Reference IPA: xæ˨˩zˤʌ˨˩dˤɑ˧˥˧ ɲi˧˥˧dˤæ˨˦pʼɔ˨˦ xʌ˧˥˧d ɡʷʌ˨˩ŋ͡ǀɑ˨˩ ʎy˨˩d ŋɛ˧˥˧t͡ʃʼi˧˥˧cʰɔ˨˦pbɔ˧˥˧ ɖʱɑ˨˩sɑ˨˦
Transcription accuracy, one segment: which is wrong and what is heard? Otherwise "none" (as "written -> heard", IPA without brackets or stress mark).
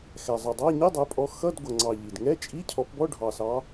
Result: y˨˩ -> i˨˩